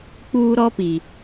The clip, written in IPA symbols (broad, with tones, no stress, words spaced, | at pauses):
k͡puː˦ɾɔ˦pi˨